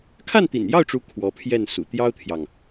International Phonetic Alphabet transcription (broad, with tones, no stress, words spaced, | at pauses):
kʰa˥˩nt̪ḭ˨˩njɑ˥˩ʊ̯ʈ͡ʂu˧˥ kʰwɔ˧˥pʰjɛ˥˩nsṵ˨˩ t̪jɑ˥ʊ̯t̪ʰjɑ˨ŋ